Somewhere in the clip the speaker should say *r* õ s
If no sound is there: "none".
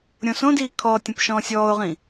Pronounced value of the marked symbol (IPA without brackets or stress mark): ɾʲ